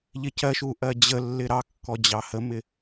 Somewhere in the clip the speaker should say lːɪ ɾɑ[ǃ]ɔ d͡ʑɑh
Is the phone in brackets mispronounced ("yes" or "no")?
yes